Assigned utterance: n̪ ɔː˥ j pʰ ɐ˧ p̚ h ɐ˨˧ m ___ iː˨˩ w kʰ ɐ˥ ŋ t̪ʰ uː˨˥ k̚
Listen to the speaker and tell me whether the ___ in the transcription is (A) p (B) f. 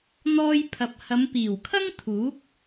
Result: A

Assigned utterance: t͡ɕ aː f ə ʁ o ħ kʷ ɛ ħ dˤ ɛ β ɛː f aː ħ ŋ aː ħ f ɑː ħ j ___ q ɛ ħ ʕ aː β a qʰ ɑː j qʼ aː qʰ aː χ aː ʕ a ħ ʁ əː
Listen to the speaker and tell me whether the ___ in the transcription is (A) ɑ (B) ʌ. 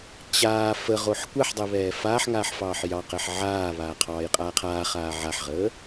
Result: A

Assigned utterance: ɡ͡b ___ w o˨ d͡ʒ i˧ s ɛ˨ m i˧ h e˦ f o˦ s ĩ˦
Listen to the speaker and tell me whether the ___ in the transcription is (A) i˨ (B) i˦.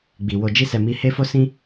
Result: A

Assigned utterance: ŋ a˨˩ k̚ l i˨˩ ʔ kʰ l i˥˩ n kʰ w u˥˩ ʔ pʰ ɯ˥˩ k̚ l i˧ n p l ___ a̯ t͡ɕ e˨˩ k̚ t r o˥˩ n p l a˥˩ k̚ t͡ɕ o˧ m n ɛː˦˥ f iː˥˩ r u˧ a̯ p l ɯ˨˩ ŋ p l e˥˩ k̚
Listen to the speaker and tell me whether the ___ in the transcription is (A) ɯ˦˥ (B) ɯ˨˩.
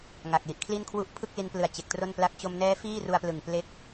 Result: B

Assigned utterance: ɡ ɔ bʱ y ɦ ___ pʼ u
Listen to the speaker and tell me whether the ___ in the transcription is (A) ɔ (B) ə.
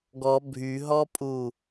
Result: A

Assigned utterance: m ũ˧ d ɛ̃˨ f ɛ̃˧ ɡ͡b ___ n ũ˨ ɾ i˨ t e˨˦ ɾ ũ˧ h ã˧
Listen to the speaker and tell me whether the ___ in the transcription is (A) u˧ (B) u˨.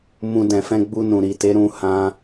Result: A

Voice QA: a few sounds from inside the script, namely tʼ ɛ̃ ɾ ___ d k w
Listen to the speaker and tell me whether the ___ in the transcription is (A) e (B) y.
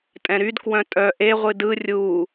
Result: B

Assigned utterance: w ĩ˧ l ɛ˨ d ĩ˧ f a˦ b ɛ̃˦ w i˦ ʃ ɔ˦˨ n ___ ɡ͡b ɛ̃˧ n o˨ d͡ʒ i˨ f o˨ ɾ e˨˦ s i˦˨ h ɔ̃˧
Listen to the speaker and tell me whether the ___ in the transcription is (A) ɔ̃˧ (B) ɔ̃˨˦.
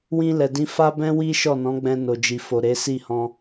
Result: B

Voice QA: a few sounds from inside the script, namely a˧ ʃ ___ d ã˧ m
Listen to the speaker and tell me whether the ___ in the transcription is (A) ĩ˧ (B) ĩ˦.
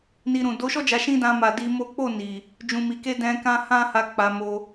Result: B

